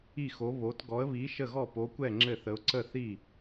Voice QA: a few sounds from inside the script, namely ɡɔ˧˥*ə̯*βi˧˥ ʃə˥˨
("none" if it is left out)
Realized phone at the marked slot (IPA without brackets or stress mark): ə̯